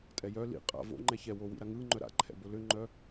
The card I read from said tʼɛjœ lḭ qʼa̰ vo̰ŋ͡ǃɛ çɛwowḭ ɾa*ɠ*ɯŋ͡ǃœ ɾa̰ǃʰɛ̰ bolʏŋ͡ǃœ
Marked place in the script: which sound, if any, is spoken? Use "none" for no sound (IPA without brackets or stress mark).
ŋ